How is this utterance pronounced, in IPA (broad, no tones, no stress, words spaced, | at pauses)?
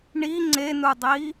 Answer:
ɳi ŋ͡ǀenudˤi